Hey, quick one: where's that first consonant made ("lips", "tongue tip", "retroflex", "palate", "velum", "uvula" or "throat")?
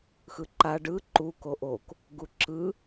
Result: velum